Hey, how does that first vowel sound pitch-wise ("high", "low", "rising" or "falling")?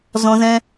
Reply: high